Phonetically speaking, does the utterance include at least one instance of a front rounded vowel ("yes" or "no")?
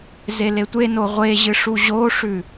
no